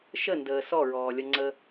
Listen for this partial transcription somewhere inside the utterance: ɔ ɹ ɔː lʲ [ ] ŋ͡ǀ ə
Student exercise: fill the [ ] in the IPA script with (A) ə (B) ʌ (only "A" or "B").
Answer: B